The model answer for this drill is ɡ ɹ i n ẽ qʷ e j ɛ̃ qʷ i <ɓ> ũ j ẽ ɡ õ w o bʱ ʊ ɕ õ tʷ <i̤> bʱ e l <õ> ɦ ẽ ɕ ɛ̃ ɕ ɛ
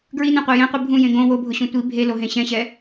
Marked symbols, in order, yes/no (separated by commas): no, no, no